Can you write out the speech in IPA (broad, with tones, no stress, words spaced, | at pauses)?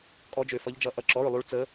kʼɔ˧˥d͡ʒø˧fʌ˧˥ʎd͡ʒʌ˧˥ ʔʌ˧ǁɔ˧˥˧ɹlˠu˧˥ɭ t͡sə˧˥